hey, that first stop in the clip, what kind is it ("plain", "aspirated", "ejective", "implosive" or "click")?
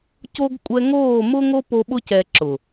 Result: plain